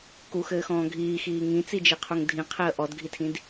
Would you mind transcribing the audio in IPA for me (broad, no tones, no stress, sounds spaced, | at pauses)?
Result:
k u x ɘː x ɔ̃ː ɡʱ iː x iː ŋ ĩ t͡s i d͡ʒ i qʰ u ŋ dʱ ĩ qʰ e ə̯ ʔ ɔ d ɡʱ i tʰ ĩ d